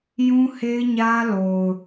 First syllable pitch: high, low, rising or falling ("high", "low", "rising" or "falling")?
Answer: high